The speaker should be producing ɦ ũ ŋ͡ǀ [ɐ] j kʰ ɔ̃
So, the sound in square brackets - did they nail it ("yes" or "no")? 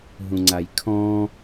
no